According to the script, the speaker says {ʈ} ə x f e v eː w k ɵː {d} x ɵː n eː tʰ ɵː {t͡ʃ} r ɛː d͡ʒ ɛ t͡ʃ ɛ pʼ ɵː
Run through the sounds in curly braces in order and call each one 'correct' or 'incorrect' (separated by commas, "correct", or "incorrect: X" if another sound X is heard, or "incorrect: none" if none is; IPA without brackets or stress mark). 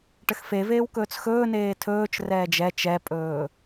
correct, incorrect: t͡s, correct